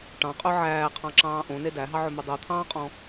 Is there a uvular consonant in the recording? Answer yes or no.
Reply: yes